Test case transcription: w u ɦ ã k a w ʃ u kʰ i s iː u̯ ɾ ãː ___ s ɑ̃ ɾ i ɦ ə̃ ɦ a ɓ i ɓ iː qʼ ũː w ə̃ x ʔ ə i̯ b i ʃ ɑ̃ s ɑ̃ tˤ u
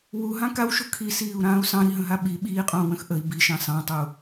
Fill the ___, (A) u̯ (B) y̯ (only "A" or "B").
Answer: A